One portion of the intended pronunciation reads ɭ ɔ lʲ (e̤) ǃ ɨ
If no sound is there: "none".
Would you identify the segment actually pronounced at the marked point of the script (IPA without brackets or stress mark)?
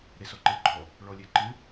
e